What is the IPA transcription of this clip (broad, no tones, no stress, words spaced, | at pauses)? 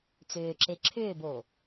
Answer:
t͡sʏːǁe ǁʰʏːboː